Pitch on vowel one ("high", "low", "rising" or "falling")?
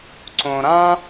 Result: low